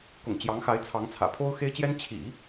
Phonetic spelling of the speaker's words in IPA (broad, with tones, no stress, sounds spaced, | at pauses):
k ʊ̰˨˩ ŋ t͡ɕ j ɑ˧˥ ŋ x a˧˥ ɪ̯ t͡sʰ ɑ˧˥ ŋ t͡sʰ ä̰˨˩ pʰ o˥ ʊ̯ x e˥ ɪ̯ t͡ɕ j ɛ˥ n t͡ɕʰ ḭ˨˩˦